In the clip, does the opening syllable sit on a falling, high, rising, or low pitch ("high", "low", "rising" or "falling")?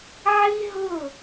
high